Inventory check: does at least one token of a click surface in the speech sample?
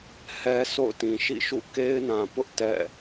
no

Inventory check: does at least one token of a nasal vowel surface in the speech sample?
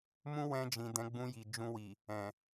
yes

